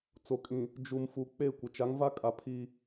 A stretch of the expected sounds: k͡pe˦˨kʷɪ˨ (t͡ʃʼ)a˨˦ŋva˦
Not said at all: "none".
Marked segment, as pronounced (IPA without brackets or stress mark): t͡ʃ